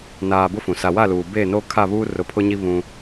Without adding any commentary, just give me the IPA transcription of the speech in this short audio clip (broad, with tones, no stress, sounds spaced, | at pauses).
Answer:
n aː˨ b ʊ˦ f ũ˨ s a˨ w a˦˨ l uː˨ b e˦˨ n o˦ kʰ a˦˨ β uː˦ r ʊ˨ pʰ ʊ˦ ɲ i˦ β ũ˦